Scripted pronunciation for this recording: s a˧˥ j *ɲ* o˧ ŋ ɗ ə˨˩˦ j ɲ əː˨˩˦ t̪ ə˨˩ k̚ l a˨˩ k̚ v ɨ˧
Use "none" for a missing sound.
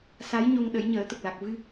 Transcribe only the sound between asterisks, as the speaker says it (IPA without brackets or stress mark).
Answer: ɲ